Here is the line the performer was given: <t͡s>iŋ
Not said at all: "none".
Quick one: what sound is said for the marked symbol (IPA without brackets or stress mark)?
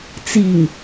t͡s